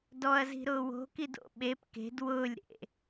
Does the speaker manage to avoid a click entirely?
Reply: yes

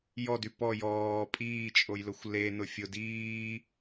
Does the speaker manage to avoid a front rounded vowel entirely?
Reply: no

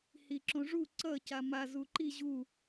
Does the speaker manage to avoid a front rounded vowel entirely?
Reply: yes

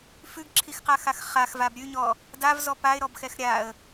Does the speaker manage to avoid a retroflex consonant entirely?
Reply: yes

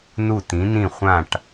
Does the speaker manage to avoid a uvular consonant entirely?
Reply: no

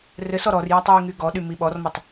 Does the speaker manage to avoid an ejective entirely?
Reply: yes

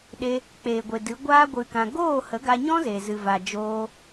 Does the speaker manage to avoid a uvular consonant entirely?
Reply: yes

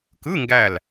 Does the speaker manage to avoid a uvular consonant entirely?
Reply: yes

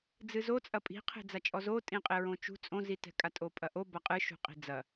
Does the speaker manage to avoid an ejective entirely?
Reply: no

